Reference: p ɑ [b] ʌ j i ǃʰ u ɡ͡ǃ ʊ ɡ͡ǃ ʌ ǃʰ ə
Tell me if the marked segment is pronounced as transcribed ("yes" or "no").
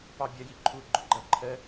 no